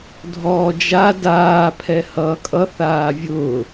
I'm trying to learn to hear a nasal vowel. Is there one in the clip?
no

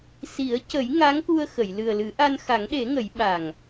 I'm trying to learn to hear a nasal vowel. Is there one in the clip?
no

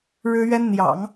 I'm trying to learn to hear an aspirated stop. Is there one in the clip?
no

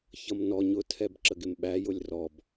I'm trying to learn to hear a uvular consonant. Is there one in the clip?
no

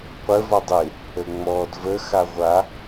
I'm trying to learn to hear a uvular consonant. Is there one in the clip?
yes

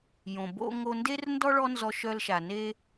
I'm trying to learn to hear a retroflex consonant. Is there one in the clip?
yes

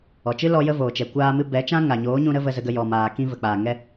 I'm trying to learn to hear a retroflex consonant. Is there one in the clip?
no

